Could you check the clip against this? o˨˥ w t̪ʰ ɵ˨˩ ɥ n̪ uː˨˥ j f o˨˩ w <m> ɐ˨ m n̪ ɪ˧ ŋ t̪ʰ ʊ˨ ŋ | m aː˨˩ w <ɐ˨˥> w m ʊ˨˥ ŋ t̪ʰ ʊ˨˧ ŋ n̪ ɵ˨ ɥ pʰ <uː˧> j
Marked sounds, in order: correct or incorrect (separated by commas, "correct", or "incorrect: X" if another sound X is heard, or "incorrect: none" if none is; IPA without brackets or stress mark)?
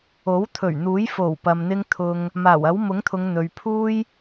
incorrect: p, correct, correct